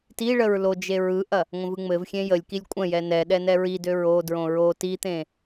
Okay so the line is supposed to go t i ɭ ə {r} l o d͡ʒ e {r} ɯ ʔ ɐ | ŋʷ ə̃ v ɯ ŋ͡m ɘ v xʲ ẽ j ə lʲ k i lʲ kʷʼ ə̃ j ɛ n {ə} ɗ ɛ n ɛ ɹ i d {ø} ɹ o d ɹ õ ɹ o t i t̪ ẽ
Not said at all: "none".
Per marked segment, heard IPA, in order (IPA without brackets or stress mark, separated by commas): ɹ, ɹ, ɛ, ø